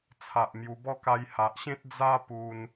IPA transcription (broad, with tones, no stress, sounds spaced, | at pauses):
t͡sʰ a˨ ʔ m j u˧ b ɔ˦ k a˧ j h a˨ ʔ ɕ ẽ˦ t̚ d͡z a˦ p u˧ n